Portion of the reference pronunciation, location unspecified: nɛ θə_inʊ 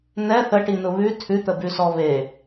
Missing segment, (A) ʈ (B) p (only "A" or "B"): A